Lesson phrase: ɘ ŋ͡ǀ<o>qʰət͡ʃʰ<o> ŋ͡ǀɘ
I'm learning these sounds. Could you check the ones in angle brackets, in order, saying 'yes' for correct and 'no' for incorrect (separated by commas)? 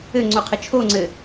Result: yes, yes